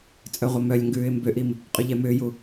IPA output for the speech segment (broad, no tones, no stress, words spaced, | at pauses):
t͡sʼœʁʷɐmœlʲŋɡʉːɪ̯ mbʏʔim | qʼʉʎɛmʏːju